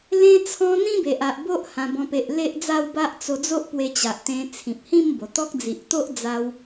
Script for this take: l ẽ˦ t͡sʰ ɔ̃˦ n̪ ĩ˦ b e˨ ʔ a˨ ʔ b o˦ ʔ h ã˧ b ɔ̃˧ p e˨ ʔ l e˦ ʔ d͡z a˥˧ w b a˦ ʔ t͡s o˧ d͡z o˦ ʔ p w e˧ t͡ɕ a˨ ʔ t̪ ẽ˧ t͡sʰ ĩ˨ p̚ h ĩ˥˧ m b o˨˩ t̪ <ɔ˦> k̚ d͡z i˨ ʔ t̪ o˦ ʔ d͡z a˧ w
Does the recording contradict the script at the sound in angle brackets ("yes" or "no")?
no